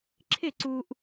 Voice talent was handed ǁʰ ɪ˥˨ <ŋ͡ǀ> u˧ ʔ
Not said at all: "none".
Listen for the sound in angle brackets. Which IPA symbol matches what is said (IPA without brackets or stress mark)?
ǀ